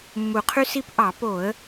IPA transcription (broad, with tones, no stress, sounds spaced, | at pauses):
mː u˨˩ qʰ y˦ s i˦ p ʔ ɑ˧˩˧ p o˧˩˧ ə̯